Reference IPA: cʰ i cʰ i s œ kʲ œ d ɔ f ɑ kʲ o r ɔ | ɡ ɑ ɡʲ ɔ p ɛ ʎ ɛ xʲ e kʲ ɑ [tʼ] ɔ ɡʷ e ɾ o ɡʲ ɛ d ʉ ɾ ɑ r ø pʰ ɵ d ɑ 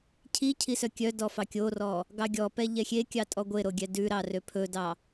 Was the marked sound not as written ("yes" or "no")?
no